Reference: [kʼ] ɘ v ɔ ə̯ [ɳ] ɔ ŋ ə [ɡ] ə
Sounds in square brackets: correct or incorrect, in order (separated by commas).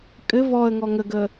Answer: correct, incorrect, correct